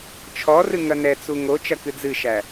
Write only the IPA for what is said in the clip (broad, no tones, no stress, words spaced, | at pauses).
t͡ʃʰɔrɨ ŋɐnɛt͡su ŋo t͡ʃɐkɨd͡zɨʃæ